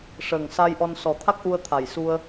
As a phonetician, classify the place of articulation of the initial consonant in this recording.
retroflex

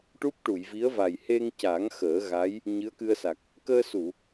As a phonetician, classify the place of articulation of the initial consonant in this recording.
retroflex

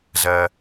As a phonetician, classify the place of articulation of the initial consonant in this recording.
alveolar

